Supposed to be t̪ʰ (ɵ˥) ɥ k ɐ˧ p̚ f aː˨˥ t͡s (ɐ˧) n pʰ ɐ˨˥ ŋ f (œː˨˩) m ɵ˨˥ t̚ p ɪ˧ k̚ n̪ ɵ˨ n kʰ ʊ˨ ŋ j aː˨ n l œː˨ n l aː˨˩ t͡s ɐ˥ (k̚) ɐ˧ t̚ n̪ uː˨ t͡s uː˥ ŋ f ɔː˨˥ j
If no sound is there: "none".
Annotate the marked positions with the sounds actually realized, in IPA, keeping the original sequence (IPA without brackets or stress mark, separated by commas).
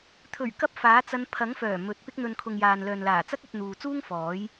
ɵ˨˩, ɐ˧, œː˨˩, k̚